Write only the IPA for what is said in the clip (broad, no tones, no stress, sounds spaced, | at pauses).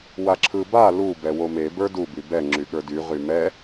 w a ǁʰ ɯ b a l u b ɛ w o m e b ə˞ d u b y b ɛ ŋ͡ǁ y ɠ ə˞ d y ʁ y m ɛ